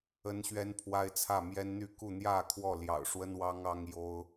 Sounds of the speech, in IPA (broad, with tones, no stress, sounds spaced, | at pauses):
ə˦ n ɕ ɥ ɛ˦ n pʰ w a˦ ɪ̯ t͡sʰ ä˥˨ m j ɛ˦ n n̪ y˥˨ k u˥˨ n̪ j ä˥˨ kʰ w ɔ˥˨ l j ɑ̰˨˩ ʊ̯ ʂ w ə˦ n w ɑ˦ ŋ ɑ˦ ŋ j o˦ ʊ̯